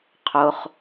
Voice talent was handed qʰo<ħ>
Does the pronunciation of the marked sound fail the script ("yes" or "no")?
yes